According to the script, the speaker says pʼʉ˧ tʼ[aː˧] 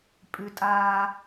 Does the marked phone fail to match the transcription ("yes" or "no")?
no